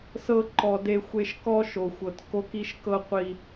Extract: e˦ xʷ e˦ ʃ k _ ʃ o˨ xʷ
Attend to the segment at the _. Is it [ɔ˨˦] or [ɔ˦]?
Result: ɔ˦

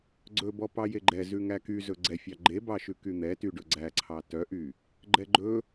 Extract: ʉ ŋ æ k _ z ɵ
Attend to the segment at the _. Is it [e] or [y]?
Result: y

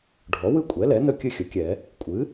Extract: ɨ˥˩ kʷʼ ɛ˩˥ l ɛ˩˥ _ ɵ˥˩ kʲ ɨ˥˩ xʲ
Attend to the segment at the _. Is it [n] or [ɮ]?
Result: n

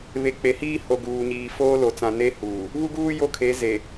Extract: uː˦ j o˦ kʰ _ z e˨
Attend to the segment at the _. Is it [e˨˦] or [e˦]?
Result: e˨˦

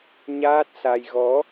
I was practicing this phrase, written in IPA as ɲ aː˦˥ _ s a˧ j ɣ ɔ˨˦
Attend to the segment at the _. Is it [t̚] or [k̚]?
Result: t̚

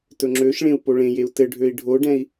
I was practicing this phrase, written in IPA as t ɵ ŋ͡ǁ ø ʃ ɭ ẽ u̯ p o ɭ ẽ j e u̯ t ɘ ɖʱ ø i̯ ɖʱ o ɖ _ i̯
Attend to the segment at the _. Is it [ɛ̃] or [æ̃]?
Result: ɛ̃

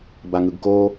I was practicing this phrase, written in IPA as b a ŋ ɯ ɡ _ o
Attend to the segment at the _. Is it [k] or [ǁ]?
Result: k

